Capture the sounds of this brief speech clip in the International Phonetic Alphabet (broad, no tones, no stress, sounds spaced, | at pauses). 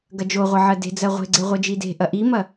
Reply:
ɡ ɐ d͡ʒ o ʁʷ ɐ ʕ ɜ d e̤ d͡z ɜ ʁʷ e̤ ɡ͡ǀ e ʁʷ ɜ d͡ʒ i d e̤ ʔ ɐ ʔ i m ɐ